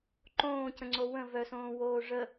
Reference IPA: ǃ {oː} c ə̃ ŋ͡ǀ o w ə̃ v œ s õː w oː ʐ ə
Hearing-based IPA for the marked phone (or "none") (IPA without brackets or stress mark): õː